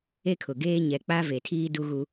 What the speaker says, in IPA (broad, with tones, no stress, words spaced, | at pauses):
e˦kʰʊ˨ɡeː˦ ɲɛ˨k͡pa˦ ve˨tʰiː˦du˦ɣu˦